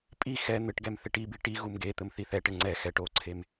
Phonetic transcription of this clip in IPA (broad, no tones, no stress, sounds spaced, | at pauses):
pʼ i x ɛ n̪ ɘ ʈ ɡ ɛ m θ e ʈ i b i ʈ i ɣ u m ɡ e t̪ ɘ m θ i θ ɛ ʈ ɘ ŋ͡ǀ ɛ x ɛ ʈ o ǀʰ e m